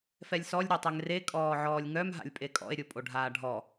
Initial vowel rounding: unrounded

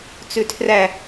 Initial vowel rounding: rounded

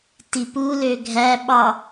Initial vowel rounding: unrounded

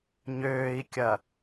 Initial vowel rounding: rounded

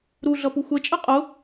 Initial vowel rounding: rounded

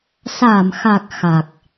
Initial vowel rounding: unrounded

